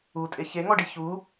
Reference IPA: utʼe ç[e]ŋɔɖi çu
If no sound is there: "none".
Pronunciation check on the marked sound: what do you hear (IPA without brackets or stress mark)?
e